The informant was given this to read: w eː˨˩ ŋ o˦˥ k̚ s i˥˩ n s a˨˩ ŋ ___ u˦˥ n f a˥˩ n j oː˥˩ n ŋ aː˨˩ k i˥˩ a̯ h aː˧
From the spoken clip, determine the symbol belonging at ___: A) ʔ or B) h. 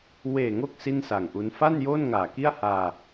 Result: A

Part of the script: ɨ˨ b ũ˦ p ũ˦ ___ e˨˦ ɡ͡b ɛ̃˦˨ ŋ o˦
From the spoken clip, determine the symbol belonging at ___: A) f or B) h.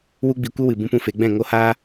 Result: A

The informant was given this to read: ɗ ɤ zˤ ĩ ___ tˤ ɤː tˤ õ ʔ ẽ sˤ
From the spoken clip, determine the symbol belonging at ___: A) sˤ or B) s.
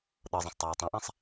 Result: B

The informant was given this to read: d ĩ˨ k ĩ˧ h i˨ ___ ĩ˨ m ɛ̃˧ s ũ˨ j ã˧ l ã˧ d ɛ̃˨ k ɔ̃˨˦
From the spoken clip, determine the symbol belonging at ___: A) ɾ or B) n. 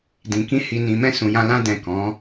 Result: B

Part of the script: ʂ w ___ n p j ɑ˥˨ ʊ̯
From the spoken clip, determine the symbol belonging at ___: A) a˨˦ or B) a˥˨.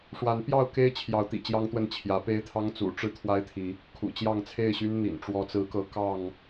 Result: A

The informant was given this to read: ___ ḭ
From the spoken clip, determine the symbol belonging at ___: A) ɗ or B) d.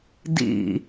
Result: B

